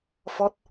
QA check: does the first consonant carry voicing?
no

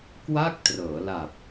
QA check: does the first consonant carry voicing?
no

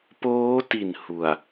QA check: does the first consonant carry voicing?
no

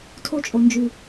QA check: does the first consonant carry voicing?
no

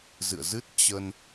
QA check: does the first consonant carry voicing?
yes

